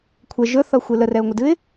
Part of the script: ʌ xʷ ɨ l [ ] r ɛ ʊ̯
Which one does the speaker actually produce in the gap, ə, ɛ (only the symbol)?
ə